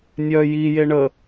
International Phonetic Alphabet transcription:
nʲœ jije ɳə

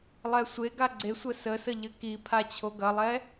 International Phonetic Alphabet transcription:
lˠɛsʷeɡa ɡ͡ǀesʷə səsə ʎɘkipʰa t͡ɕʰoɡɐlˠɛ

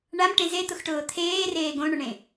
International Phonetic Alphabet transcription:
ɳamʈẽ zet̪ʊxʈʊː t̪ʰeːreː ɡõɳʊɳẽ

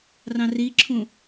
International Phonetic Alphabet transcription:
rɑ̃riǁʰũ

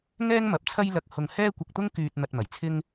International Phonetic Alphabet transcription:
ŋɛː˥ŋmɐ˨p̚ t͡sʰɐ˥jlɐ˧k̚hʊ˧ŋ hɛː˥kʷɐ˧k̚t̪ʊ˥ŋkyː˧t̚ n̪ɐ˧t̚mɐ˨˩jt͡sʰɪ˥ŋ

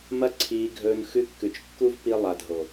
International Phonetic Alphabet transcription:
mɐ˦ǀʰiː˧ɡʱɵː˧n xʉ˧kːʉ˨t͡ʃ kːu˦vpi˧ lˠa˨dʱo˨

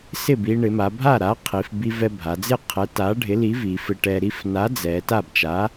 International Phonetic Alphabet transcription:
sɪ˥˩bi˧ ɳɪ˩˧ma˩˧bʱa˥˩ɾa˨˥ qʰi˩˧fbi˧ vɛ˧bʱa˩˧d͡zɪ˥˩qʰɛ˨˥ ta˨˥ɖʱɪ˨˥ li˨˥vi˩˧fɪ˧ ʈɛ˧ ɾi˧fna˨˥d͡zɛ˩˧ ta˥˩bt͡ʃa˨˥

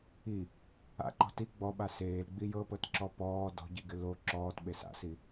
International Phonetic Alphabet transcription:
i | a̰ǃɔ̤ ti ɡ͡bɔɓa seːlɡ͡bi jɤpɤtǁɔ pɔː dɔ̤ɟiɡɪ lo ǁɔːtɓes a̰si

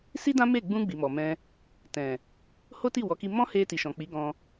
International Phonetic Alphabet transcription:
si˦dã˦ me˦˨ ɡ͡bũ˧ ɡ͡bi˨mɔ˨mɛ̃˧ | tɛ̃˨ | ho˦ti˦˨wɔ˨˦ki˧ mɔ̃˦he˧ti˨ʃɔ̃˨ k͡pi˨˦ɡɔ̃˧

